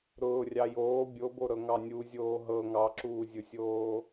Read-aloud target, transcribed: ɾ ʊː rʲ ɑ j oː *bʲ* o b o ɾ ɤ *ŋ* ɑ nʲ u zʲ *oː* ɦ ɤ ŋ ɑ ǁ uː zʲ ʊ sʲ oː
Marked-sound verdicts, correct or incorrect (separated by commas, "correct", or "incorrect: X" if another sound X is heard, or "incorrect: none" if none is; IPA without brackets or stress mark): correct, correct, correct